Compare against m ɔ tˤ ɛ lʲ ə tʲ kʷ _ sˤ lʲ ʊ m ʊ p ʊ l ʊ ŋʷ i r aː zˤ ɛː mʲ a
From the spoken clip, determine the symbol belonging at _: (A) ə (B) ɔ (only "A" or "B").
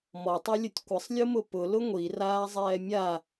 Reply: A